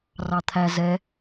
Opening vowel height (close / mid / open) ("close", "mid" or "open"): open